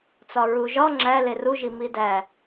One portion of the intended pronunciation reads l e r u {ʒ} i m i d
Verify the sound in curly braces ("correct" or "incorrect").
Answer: correct